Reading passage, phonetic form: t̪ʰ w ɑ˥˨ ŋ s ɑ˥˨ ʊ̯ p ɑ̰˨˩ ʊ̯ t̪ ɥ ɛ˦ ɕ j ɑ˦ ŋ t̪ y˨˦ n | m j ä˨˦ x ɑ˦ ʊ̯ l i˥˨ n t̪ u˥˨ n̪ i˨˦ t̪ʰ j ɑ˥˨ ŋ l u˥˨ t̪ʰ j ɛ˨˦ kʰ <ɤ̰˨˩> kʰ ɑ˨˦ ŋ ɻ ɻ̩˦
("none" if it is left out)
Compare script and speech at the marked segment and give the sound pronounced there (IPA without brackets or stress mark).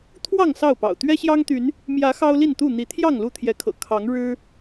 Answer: ɤ̰˨˩